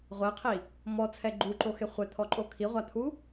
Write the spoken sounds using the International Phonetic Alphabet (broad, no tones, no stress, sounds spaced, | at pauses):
ʁʷ ɛ qʰ i | m ɔ t͡sʰ ɛ ɡ͡ǃ u ǃ o x e χʷ ɛ t̪ʰ ɔ ǃʼ o kʰ i ʁʷ a t̪ʰ u